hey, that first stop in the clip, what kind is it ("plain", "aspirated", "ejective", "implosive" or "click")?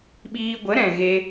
implosive